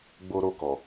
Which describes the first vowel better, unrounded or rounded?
rounded